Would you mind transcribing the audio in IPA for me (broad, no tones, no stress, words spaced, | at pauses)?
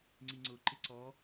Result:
ŋ͡ǀiŋ͡ǀʊ ǃɪǀɔ